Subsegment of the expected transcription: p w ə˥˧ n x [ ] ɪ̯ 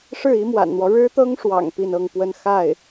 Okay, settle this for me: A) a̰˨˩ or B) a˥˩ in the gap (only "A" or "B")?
B